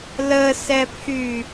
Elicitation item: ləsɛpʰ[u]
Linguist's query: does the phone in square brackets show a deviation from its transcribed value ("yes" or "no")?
yes